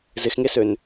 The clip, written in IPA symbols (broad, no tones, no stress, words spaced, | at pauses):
zɪxŋesøn